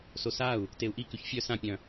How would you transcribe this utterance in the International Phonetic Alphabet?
sosau̯ | teu̯ʔikʉç fʲœ sãpʲœ̃

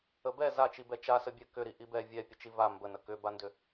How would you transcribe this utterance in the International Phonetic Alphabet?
əbɛ zat͡ʃibɛ t͡ʃasəbʲɛ kʏɾi ʔibɛ vʲɛ pʲət͡ʃiva mbənə kʏbandʏ

